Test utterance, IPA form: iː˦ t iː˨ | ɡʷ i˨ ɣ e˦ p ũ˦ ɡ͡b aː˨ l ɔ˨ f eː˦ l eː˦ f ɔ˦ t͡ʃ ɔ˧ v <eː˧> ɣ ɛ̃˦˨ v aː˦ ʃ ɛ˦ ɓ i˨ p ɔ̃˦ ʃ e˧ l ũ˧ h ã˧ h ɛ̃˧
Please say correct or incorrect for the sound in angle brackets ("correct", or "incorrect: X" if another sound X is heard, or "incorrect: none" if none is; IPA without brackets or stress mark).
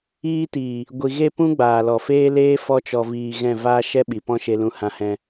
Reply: incorrect: iː˧